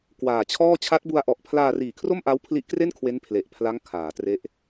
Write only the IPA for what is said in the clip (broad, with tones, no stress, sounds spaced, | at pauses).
k w aː˨˩ t͡ɕʰ ɔː˥˩ t͡ɕʰ a˦˥ t̚ b u˧ a̯ ʔ ɔ˨˩ ʔ pʰ l aː˧ r iː˨˩ kʰ r o˥˩ m ʔ a˦˥ w pʰ l i˦˥ ʔ k r e˥˩ n kʰ w e˦˥ n pʰ l e˨˩ ʔ pʰ l a˦˥ ŋ kʰ aː˩˦ t r e˦˥ ʔ